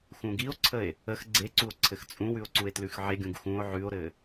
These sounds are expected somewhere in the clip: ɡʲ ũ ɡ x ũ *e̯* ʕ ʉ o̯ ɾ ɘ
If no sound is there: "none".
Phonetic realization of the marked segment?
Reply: o̯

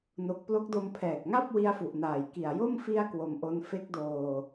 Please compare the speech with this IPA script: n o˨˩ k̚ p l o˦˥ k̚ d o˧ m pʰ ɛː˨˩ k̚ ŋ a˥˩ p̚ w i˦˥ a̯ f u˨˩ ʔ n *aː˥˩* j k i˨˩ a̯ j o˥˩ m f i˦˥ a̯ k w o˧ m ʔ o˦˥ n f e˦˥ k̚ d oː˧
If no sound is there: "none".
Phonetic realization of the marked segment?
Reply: aː˨˩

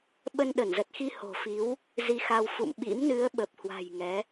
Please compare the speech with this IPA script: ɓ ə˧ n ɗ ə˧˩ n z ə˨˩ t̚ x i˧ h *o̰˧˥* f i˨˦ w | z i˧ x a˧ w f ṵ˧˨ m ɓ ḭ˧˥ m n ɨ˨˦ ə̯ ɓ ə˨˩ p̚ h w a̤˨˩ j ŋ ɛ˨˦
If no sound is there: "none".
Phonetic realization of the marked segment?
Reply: o̤˨˩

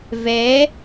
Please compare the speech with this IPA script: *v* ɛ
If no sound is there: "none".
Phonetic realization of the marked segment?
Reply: v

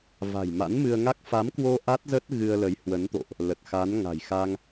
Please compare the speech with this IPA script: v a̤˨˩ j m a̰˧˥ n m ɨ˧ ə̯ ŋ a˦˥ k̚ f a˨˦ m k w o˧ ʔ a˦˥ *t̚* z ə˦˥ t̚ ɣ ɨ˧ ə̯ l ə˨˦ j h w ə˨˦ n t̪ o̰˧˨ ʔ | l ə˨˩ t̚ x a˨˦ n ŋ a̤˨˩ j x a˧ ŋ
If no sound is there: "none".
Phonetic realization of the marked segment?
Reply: t̚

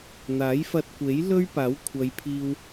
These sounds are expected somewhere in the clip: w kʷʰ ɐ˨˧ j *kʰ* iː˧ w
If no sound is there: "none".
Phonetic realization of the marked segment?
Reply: pʰ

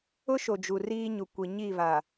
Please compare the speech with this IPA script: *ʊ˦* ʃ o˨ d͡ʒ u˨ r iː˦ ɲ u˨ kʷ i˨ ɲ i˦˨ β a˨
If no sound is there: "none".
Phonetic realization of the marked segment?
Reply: ʊ˦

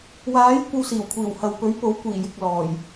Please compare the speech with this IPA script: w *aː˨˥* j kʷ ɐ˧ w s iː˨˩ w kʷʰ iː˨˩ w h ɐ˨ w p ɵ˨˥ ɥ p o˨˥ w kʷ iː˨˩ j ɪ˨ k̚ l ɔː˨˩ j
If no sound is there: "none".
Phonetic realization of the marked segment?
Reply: aː˨˥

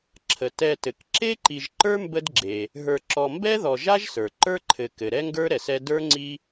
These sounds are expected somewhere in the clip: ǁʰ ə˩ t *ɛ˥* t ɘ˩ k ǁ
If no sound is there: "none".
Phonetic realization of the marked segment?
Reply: ɛ˨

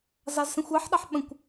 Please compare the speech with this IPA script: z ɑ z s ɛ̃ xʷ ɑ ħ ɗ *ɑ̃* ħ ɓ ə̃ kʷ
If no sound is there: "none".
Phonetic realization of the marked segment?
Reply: ɑ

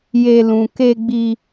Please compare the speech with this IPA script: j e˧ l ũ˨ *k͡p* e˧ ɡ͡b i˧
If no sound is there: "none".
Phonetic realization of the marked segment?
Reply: k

